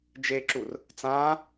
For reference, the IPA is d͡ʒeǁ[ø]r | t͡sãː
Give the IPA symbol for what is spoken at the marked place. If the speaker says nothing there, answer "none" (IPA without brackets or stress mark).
u